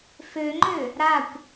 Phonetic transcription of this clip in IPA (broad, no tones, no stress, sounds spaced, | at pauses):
f ø ŋ͡ǃ ø | ɾ a kʷ